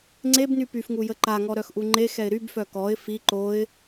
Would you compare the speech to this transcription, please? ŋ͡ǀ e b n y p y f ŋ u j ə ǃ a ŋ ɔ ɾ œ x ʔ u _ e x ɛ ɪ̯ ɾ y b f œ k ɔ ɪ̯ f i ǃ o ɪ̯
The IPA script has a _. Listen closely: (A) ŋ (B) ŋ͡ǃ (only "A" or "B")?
B